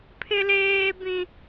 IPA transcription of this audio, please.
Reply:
pʰ ɪ˦ l eː˦ b ĩ˦

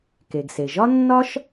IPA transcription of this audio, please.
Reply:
k e˩ ɡ s e˩ ʒ ɒ˥ nː ɒ˥ ʃ

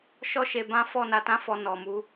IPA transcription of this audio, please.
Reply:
ʃ ɔ˦ ʃ e˧ b ã˦ f ɔ˦˨ n a˧ t ã˦ f ɔ˧ n ɔ˨ m u˧

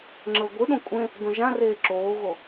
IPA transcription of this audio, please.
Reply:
ŋ͡ǁ ɤ ɡʷ ɯ ɗ õ kʷʼ ẽ | d õ ʒ ã r eː ǁ oː ɣ o

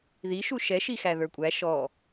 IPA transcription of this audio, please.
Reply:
ð i ʃ u ʃ ɛ ʃ i x æ ð ə˞ kʷʼ æ ʃ ɔ

